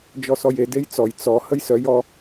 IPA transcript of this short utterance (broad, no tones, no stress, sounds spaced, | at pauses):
d͡ʒ ɔ s ɔ j e d e j t͡s ɔ j t͡s ɔ h ə j s œ j ɔ